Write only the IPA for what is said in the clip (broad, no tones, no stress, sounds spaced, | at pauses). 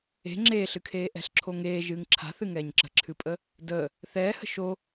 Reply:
e̤ ŋ͡ǁ eː ɬ ɨ kʰ eː ʔ ɛ̤ ɬ ǁʰ o ŋ eː ʒ ɨː ŋ ǁʰ a̤ θ ɨ ŋ ɛː ɲ ǁ ə̤ ǁʰ ɨ pʼ ə | d əː | θ ɛː h ə̤ ʃ o